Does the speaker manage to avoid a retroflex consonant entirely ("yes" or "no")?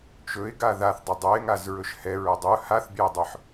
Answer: yes